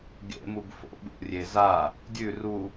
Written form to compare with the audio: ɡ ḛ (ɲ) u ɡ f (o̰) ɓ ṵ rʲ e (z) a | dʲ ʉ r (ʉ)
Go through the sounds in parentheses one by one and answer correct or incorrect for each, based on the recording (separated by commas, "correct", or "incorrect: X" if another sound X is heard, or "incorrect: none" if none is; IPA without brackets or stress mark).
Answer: incorrect: m, correct, correct, incorrect: u